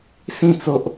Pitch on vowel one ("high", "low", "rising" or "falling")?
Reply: falling